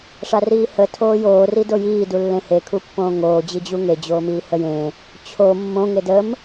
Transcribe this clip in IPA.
ʂ a r iː h ə tʰ oː j oː r i d o j iː d u lː ẽ h e kʰ u pː õː ŋ oː d͡ʑ i d͡ʑ u ŋ e d͡ʑ oː m iː h ə j ẽ | t͡ɕʰ o mː õ ŋ e d ə m

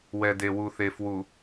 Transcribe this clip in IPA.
w ɛ˨ d e˨ w u˨ θ e˨ f w u˨

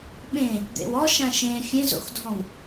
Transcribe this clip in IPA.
ɓ ẽ | d̪ ḛ w ɔ ʃ ã ʃ ẽ fʲ ẽ z o̰ x dʱ ɔ̃ w

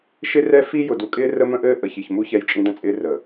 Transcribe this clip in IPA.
ʃ ɪ˦ r ɛ˦ f i˦ j ʊ˨ d u˨ kʼ ɪː˦ r ə˦ m ə̃˦ ʔ ɘː˦ ʔ ə˨ ç i˨ ç m u˦ ç ɛ˦ j t͡ʃʼ ĩ˦ d ə̃˦ t͡sʼ ɪː˦ r ə˨

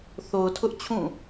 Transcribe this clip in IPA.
θ o˨ ʊ̯ tʰ ʊ˦ ʔ t͡ɕʰ ũ˦˨

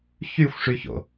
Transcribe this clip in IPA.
ç y xʷ ʂ y ç o̰

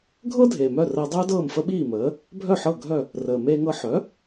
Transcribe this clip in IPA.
ɡʱ ɤ˥ dʱ eː˩ m œ˥˩ r əː˧ dˤ œː˥ d ɤː˥˩ m f ə˥ ɓ iː˥˩ m əː˩˥ | bʱ œ˥˩ ħ ɤ˥˩ ɡʱ œ˥˩ | r əː˩ m eː˧ ŋ ɤ˧ ħ œ˩˥

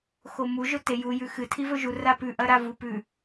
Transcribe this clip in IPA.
x o m u ʒ ɵ t e j u j ʉ x ɨ tʰ i v ɵ ʒ u r a p ʉ ʔ ɐ ɾ a v u p ʉ

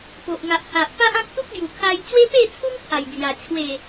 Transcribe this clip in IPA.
p o˨ ʔ ŋ a˨ ʔ h a˨ ʔ p a˦ ʔ ã˦ k̚ t̪ u˦ k̚ ɡ j u˨˩ kʰ a˧ j t͡ɕ w e˦ p e˥˧ t͡sʰ u˦ ŋ pʰ a˨˩ j d͡z j a˨˩ t͡ɕʰ w e˨˩

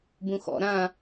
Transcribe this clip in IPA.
b ũ x ɔ̰ ɾ ã

